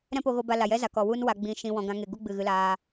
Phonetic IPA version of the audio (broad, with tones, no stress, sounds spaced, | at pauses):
ɾ ɛ̃˦ p o˧ ɣ o˧ b a˧ l a˨ j ɛ˦ z a˨ k ɔ˨ w u˦ n w a˧ ɡ͡b ĩ˧ ʃ ĩ˧ w ɔ̃˧ ɡ ã˧ ŋ e˨ ɡ u˦ ɡ͡b ɨ˨ ɣ ɨ˧ l aː˧